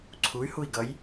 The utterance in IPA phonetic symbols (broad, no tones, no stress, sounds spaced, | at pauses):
ǀʰ u y̯ h u i̯ ɡ ʌ j